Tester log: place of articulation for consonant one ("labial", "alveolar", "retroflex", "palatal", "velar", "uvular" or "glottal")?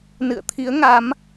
alveolar